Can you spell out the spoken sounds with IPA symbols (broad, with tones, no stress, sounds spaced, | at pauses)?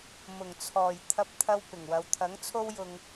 m ʊ˨˩ ŋ t͡sʰ ɔː˨˩ j t̪ʰ ɐ˧ p̚ t̪ʰ ɐ˧ w p ɪ˨˩ ŋ w ɐ˨ w t̪ʰ ɐ˨˥ ŋ t͡sʰ o˥ w j ʊ˧ ŋ